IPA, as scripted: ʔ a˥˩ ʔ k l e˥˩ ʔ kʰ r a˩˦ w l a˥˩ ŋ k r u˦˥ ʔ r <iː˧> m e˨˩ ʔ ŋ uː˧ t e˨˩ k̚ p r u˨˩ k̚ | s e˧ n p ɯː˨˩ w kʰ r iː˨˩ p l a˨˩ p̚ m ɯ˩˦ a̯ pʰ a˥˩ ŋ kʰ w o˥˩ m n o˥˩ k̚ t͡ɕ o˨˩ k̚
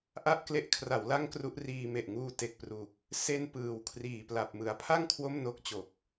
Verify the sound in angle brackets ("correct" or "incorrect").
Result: correct